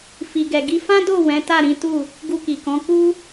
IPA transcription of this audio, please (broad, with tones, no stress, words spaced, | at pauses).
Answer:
fi˨ɡɛ˨ɡi˧ fã˦do˦˨ wɛ̃˨˦ta˦˨ɾĩ˨˦tu˦˨ | ɡu˧ki˨kɔ̃˨˦ ku˦